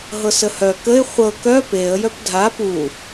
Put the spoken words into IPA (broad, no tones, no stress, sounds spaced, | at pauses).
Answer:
ɦ ɤ s ə h œ k ə ɪ̯ χʷ ɤ k œ p e ə̯ j œ p dʱ a p u